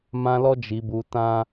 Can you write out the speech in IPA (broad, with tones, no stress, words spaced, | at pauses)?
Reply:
mã˧lɔ˧ d͡ʒi˨bu˨ tã˧